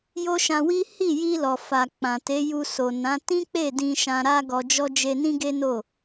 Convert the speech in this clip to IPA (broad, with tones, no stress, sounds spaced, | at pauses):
j o˦ ʃ ã˧ w i˦ h i˦˨ j i˧ l ɔ˨ f a˨ k͡p ã˨ t e˨˦ j u˧ s o˨ n ã˨˦ t ĩ˦ k͡p e˦˨ d ĩ˧ ʃ ã˧ ɾ a˦ ɡ ɔ˧ d͡ʒ ɔ˦ d͡ʒ e˧ n ĩ˦ ɡ e˦ n o˦˨